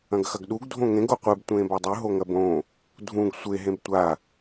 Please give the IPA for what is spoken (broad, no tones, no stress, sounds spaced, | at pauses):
ɐ̃ ɡ x ɐ ɡ ɗ u ɡ dʱ õ ŋ ẽ ɡ o qʷ e b tʷ ẽː b a dˤ ʉ ɦ o ŋ ɐ b õ | dʱ ũ ɡ sʷ e ɦ ẽ b tʷ a